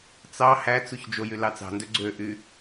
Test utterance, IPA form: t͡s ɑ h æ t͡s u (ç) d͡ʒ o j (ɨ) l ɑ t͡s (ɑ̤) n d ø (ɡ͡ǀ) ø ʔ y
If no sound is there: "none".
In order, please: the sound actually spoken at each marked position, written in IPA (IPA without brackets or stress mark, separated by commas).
ç, y, ɑ̤, ɡ͡ǀ